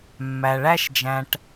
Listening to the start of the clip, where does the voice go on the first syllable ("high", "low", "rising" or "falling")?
low